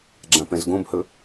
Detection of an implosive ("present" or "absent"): absent